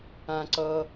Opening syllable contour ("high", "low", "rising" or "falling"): high